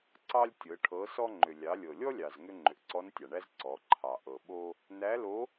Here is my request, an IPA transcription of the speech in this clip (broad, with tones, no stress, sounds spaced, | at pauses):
ǀ ɑ˥ lʲ tʲ ɤ˩˧ ʈʰ ɤ˩˧ s ɔ˧ ŋ͡ǃ ʏ˩ lʲ ɑ˩˧ lʲ ɤ˩ lʲ ɔ˥ lʲ ɑ˩ z ŋ ʏ˧ ŋ͡ǃ ʏ˩ ʔ ǀ ɔ˧˥ n tʲ ɑ˩ ɳ æ˥ z ǀ ɔ˩˧ ǃʰ ɑ˩ ʔ ɤ˩ ɓ o˧ | n æ˧˥ l o˧˥